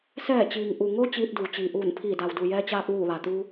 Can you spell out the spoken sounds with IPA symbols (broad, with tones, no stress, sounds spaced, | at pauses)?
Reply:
s ɛː˧˩ t͡ɕ iː˩ ŋ ʔ u˩ ŋ o˧ t͡ɕ iː˧ t̚ d uː˩ t͡ɕ iː˩ ʔ uː˧˩ n pʰ iː˧˩ d a˩ w d u˩ j ɛː˧ t͡ɕ aː˧ p̚ ʋ uː˧˩ ʋ a˩ t̪ u˧